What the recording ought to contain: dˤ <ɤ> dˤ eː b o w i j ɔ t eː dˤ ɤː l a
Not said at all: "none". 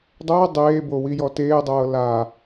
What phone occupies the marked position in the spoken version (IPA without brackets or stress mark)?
ɤ